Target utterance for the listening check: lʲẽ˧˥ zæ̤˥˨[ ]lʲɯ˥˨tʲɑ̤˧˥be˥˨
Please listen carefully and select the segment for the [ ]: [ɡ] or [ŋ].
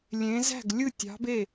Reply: ɡ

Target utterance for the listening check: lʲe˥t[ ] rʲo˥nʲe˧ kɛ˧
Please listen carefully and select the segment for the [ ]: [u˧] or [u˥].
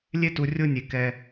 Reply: u˧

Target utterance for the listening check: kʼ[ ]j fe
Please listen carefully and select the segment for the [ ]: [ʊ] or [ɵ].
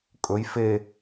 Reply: ɵ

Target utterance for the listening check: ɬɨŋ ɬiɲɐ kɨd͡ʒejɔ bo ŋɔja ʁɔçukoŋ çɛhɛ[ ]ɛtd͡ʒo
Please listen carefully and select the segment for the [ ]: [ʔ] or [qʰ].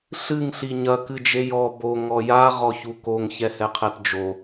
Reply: qʰ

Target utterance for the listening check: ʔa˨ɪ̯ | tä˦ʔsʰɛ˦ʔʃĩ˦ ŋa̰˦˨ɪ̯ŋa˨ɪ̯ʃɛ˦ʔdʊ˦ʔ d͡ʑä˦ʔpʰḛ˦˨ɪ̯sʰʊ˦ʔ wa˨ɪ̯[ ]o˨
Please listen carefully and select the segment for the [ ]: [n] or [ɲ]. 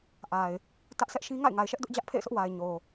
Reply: ɲ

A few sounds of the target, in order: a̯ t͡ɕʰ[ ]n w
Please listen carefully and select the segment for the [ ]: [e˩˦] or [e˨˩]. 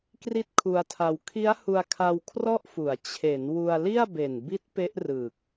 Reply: e˩˦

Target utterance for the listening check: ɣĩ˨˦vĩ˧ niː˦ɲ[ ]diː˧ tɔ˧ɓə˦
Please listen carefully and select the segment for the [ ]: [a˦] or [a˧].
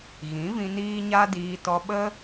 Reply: a˦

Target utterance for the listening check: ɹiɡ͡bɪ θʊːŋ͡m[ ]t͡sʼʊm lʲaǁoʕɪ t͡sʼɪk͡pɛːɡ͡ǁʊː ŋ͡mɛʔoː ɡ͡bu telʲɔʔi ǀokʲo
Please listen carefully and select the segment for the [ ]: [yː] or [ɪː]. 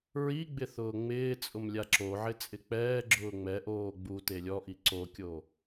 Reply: ɪː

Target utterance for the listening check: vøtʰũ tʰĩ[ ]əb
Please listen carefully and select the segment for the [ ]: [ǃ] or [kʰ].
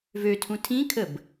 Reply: kʰ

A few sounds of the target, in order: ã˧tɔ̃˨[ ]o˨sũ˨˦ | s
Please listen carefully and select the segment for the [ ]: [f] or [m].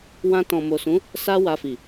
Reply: m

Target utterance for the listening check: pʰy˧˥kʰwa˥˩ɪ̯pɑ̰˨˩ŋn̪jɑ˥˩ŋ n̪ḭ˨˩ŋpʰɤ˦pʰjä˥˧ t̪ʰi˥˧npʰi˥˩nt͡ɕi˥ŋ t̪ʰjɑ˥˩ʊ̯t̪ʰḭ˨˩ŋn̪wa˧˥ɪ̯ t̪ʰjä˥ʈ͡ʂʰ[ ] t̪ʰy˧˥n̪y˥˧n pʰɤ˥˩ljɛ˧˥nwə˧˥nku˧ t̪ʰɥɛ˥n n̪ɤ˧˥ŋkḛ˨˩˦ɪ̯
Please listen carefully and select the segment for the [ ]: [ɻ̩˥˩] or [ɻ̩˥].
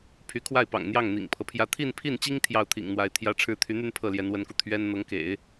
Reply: ɻ̩˥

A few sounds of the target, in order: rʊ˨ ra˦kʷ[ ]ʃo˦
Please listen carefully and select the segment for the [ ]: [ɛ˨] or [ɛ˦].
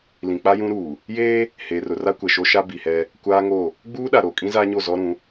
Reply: ɛ˨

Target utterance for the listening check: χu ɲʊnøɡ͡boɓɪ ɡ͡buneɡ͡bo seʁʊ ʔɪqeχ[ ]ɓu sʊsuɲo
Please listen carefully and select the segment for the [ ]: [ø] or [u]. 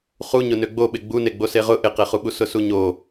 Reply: u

